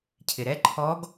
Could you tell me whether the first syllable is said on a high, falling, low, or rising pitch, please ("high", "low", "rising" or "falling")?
low